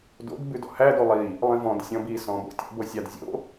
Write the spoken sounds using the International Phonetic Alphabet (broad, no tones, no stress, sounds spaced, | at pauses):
d o̰ d b ʉ d ɔ̰ h æ d o lˠ i | lˠ ĩ v ɔ̃ d sʲ ɔ̃ b i s ɔ̃ b o̰ tʲ ɔ̰ b o sʲ ɑ d zʲ o̰